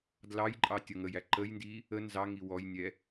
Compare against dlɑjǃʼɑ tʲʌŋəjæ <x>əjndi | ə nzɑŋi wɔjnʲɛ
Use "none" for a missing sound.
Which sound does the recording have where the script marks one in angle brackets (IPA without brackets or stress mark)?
ǃ